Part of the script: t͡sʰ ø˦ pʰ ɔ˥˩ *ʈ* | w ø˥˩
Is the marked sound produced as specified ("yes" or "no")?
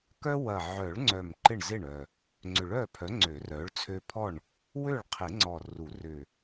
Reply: no